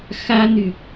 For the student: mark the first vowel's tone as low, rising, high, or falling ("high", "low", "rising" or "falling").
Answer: high